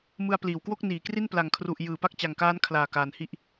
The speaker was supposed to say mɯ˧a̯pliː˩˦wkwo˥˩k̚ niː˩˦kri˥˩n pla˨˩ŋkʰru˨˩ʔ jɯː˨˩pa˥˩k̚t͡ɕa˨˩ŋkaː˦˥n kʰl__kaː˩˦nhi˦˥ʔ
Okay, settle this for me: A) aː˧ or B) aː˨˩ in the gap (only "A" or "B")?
B